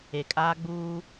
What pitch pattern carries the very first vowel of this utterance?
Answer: low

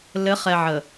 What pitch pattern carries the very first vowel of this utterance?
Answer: rising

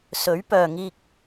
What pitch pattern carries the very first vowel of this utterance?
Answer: rising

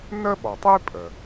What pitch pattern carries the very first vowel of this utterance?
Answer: high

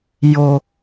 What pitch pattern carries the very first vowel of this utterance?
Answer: low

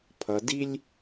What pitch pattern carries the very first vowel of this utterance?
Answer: low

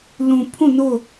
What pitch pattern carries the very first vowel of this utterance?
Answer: low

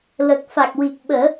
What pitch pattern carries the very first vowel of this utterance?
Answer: low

